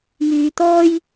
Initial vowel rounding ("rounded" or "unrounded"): rounded